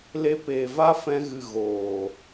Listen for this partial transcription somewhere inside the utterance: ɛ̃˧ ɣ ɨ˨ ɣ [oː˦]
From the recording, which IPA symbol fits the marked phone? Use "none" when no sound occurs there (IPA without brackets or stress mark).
oː˨